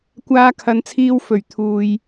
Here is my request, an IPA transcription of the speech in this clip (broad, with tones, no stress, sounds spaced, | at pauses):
kʷ aː˧ kʰ ɐ˨˧ n t͡sʰ iː˧ w f ɵ˨˩ ɥ t̪ʰ uː˨ j